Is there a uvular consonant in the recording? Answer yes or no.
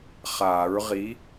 yes